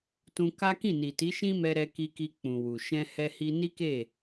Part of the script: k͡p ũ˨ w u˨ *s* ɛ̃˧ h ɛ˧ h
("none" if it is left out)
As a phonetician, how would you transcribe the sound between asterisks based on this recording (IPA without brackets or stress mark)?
ʃ